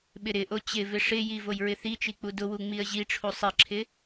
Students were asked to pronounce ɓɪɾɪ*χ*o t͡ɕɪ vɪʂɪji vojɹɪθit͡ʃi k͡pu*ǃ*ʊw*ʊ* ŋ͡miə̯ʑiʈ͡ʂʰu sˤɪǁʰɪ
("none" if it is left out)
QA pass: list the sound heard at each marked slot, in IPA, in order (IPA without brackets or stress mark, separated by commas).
ʔ, d, u